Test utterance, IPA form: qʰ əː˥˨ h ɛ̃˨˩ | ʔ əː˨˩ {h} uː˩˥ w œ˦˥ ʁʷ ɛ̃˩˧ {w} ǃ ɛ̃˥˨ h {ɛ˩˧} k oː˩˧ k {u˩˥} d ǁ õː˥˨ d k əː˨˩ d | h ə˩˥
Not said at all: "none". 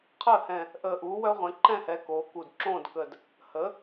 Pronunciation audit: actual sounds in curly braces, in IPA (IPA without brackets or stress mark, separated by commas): ʔ, none, ɛ˩˧, u˨˩